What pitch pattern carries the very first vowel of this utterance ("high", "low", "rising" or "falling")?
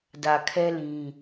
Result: low